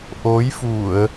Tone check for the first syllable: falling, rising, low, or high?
rising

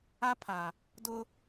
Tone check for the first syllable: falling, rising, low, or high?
high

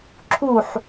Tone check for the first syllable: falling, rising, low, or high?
falling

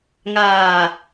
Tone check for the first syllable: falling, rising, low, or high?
low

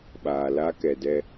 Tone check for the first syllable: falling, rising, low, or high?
low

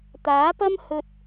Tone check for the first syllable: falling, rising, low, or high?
rising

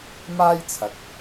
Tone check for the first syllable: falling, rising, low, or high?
high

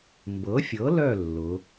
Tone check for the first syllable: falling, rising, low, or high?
rising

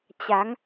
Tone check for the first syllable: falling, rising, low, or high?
rising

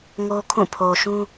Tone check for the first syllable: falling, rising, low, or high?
high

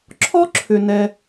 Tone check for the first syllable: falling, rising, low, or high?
high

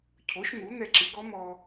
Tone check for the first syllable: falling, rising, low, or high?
rising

